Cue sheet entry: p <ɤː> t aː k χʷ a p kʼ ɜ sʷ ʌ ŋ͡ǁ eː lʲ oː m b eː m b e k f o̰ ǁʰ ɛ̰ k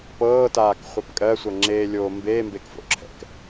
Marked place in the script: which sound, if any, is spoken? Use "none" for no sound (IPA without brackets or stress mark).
ɤː